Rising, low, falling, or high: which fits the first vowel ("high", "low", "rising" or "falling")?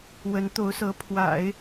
rising